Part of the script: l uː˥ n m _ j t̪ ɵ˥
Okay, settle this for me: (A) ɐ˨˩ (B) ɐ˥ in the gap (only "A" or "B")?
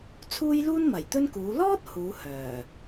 A